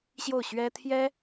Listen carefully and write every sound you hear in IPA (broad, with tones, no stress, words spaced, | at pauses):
ɕjo˥˩ʊ̯ɕɥɛ˥t̪ʰjɛ˥